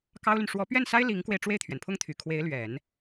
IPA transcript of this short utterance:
kɑ˥ʊ̯ly˨n ʂwɔ˧˥pɥɛ˥˩nsa˥ɪ̯ li˧˥ŋkwe˧ɪ̯ ʈ͡ʂwe˥˩ɪ̯t̪ʰɥɛ˩npʰʊ˥ŋt̪ʰy˨˩ kʰwe˧˥ɪ̯lɥɛ˨˩˦n

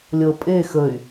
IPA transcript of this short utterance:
lʲɤ pʼe xəy̯

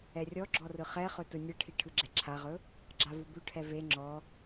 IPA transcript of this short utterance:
ɛrʲɔɡ͡ǁɔ rɯχɛχɵ tɯnʲɯʈʰi ʈʰɯɡ͡ǁɛǁʰaʁɵ | ɡ͡ǁavubʉʈʰɛ ve ŋ͡ǁɔ

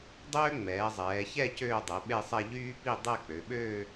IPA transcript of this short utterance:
dˤøː˥ŋ͡mɛː˩˧zˤɛː˩˧çɛ˥˧ cøː˥˧dˤɛ˩˧ɓe˥˧sˤɛ˥˧ ʎyː˥pi˥˧ dˤɛ˥˧k͡pø˩˧ɓøː˥˧

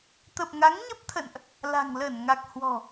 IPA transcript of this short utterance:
t̪ə˨˩p̚ŋa˨˦ŋɲə˦˥p̚t̪ʰə̰˧˨nʔ | la̤˨˩ŋlə˧˩nŋa˨˩k̚ hwɔ̤˨˩

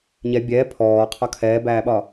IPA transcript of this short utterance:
ɲɛ bʲɛː pʰɔːqʰɒ kʰɛːbæːɓɒ

